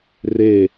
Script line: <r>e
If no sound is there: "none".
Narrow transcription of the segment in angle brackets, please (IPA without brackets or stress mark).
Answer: r